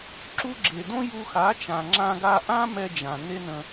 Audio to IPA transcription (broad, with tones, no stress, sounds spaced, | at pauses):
ǁ u˧ ɡ͡ǁ e˨ d õ˦ j u˧ x a˨˦ t͡ʃ ã˨ ŋ͡ǁ ã˧ ɡ a˧ ʔ ã˦ m ɛ˧ d͡ʒ ã˨ n e˦ n ə̃˧